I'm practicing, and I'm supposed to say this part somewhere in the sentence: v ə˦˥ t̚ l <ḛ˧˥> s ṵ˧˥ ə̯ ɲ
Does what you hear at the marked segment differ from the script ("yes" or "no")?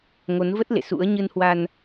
yes